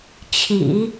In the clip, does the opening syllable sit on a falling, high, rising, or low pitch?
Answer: low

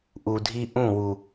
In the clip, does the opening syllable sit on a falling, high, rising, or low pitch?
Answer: low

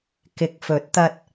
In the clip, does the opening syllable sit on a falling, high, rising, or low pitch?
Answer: low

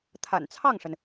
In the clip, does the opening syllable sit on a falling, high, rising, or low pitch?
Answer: low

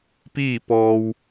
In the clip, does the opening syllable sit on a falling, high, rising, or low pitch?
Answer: falling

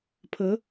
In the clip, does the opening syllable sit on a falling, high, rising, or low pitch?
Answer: rising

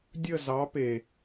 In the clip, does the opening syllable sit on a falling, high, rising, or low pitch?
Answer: falling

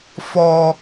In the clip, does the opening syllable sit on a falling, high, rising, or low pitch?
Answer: high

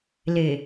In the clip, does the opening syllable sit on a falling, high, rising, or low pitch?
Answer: low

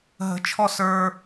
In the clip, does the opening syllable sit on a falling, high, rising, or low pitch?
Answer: rising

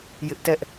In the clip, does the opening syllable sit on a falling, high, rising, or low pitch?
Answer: high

